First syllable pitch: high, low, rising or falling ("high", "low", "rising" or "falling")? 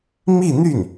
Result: falling